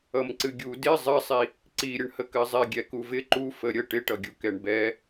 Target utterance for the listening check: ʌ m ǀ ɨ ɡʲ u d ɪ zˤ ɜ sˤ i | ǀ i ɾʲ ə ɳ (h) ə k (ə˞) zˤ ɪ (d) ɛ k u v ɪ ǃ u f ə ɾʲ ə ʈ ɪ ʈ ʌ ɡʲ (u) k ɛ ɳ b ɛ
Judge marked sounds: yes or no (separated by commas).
yes, no, no, yes